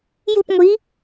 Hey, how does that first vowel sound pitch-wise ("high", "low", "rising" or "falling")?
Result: falling